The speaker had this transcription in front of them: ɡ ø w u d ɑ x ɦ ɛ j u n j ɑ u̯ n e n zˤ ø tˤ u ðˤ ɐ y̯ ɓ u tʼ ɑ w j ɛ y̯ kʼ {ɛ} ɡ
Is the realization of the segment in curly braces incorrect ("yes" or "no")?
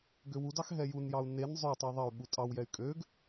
yes